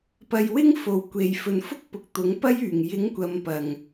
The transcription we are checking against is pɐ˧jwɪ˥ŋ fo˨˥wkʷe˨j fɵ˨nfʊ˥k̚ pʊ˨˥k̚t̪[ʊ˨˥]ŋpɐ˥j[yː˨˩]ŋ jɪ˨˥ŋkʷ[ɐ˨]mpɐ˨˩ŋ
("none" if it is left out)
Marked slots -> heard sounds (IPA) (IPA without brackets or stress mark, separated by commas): ʊ˨˥, yː˨˩, ɐ˨